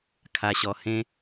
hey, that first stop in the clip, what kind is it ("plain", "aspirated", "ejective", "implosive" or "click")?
aspirated